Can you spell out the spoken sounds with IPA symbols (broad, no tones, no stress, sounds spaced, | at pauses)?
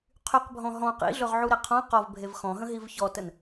qʰ y q bʱ ɔ̃ ɦ ɔ̃ q ḭ ɮ ɵ ʁ ʕ u ɾ e qʰ ɔ̃ q ɔ v bʱ e v x ɔ̃ ɦ ə̃ ɦ i v ç ɔ t ə n